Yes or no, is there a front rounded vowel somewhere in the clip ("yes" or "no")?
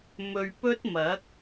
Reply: no